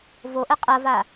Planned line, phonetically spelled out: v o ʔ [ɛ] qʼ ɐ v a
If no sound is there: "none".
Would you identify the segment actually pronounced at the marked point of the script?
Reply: ɛ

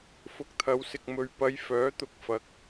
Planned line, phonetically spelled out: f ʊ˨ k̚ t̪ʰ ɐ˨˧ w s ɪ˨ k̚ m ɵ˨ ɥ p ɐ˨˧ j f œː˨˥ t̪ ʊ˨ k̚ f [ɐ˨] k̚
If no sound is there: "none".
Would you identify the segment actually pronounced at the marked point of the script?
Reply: ɐ˨˥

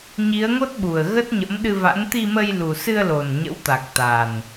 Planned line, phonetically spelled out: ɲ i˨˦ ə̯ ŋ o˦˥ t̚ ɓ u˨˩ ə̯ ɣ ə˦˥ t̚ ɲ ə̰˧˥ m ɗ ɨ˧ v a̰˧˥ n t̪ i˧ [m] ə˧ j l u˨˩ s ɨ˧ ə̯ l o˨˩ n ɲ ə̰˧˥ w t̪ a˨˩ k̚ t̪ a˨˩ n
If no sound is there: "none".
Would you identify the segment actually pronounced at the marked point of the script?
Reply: m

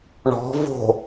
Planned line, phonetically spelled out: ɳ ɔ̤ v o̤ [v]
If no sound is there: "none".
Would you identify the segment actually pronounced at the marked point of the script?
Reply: none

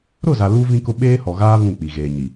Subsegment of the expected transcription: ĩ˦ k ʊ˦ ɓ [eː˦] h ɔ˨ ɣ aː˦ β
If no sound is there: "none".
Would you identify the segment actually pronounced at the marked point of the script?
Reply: eː˦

